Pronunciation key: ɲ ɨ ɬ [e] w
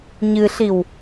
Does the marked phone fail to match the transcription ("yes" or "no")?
yes